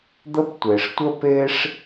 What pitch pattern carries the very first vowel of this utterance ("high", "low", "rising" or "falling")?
high